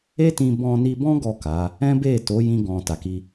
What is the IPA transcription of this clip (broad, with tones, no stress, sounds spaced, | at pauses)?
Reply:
e˦ t ĩ˧ b ɔ̃˧ n i˧ b ɔ̃˦ ɡ ɔ˦˨ k a˨˦ | ɛ̃˦ b e˦˨ t o˨˦ j ĩ˦ ɡ ɔ̃˧ t a˨ k i˧